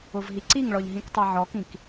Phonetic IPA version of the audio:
ʊ v ɦ i ǀ i ŋ ɭ ɔ ʎ ɦ ĩ k tˤ i ʕ ɔ k ĩ k

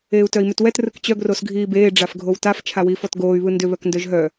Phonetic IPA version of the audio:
eː u̯ t œ i̯ m ʏ t w ɛ t r ɯ k t͡ɕ œ ɡ r o s ɡʱ iː b eː ɖ͡ʐ a f ɡʱ o w t a f t͡ʃʰ a w iː f ɔ t ɡ oː y̯ β ɯ n d ʏ β œ k n d œ ʒ ɦ œ

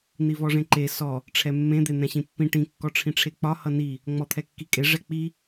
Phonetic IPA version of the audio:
n̪ i v ɔ ʐ ẽ ǃ e s ɔ | ʈ͡ʂʰ ɛ mː ẽ d̪ e n̪ ɛ̃ ɕ ĩ pː ĩ ʈ ĩ kː ɔ ʈ͡ʂʰ ĩ ʈ͡ʂʰ e k͡p ɒ h ʌ n i | ŋ͡m ɔ t̪ʰ ɛ kː i kʼ e ʐ ɛ k͡p i

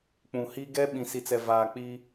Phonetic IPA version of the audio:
k͡p ũ˨ h i˦ ɡ ɛ˦ ɓ ĩ˨ s i˨ t͡s ɛ˨ v aː˨ k͡p i˦

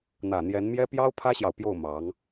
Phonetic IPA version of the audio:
n̪ ä˨˩ n̪ j ɛ˧˥ n m j ɛ˥ p j ɑ˥ ʊ̯ pʰ ä˥ ɕ j ɑ˨ ʊ̯ p j o˥˩ ʊ̯ m ɑ˧˥ ŋ

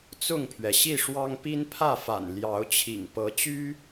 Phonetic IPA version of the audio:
t͡s ʊ˥˨ ŋ pʰ ɥ ɛ˩ ɕ i˥˨ ʂ w ɑ˦ ŋ p i˦ n pʰ ä˥˨ f a̰˨˩ n l j ɑ˨˦ ʊ̯ t͡ɕʰ ḭ˨˩ ŋ p ɤ˨˦ t͡ɕ y˦

